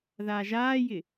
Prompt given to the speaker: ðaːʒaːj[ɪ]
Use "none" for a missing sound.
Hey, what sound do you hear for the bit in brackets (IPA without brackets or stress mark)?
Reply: ɪ